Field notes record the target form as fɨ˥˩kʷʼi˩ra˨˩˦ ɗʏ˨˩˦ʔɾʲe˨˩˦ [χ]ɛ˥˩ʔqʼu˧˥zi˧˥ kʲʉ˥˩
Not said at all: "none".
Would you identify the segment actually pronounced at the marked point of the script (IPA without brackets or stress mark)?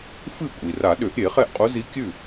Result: χ